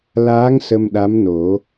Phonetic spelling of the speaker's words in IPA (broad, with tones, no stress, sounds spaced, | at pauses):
l aː˧˥ ŋ s ə˧ m ɗ a˧˥ m n o˨˩˦